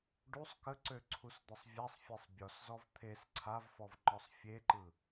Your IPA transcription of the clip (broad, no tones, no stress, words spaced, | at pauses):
ɖusˤ kəǀø ǀʰusd̪ʌsˤvʲasˤfʲesˤ bʲɔszɔv t̪ʰes ǀʰavfɔv ŋ͡ǃɔsˤfʲeǃɯ